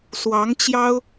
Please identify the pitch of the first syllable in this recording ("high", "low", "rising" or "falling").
rising